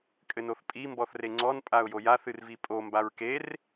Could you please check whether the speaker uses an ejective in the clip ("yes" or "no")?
yes